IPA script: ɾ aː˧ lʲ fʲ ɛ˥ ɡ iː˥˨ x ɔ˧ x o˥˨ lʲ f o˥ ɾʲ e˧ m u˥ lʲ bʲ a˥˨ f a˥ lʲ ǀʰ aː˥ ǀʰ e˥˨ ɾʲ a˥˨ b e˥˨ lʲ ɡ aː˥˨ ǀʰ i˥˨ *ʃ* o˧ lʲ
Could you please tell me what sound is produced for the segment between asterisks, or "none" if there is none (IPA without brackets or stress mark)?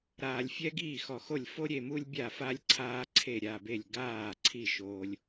ʃ